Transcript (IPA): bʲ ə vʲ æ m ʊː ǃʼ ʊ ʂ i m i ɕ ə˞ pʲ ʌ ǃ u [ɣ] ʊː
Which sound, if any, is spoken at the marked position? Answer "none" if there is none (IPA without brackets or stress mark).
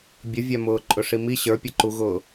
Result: ɣ